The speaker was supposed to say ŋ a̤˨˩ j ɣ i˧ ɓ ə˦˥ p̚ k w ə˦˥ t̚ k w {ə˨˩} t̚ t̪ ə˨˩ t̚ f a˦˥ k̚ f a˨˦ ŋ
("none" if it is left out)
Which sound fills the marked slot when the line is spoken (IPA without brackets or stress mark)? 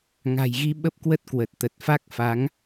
ə˨˩